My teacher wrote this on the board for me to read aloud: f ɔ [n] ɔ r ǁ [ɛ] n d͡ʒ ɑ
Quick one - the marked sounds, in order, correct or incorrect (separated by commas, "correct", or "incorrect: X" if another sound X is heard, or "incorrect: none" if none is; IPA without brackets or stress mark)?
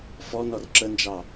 correct, incorrect: ə